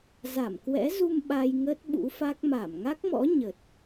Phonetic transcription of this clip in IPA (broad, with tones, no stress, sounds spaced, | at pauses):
z a˧˩ m k w ɛ̰˧˥ z u˧ m ɓ a˧ j ŋ ə˦˥ t̚ ɓ ṵ˧˥ f a˦˥ k̚ m a˧˩ m ŋ a˦˥ k̚ m ɔ̰˧˥ ɲ ə˨˩ t̚